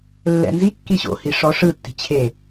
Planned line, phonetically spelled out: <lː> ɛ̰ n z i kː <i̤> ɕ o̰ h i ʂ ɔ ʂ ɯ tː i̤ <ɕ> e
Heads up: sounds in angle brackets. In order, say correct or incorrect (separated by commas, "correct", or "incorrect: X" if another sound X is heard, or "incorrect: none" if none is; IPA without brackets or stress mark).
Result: correct, incorrect: i, incorrect: t͡ɕʰ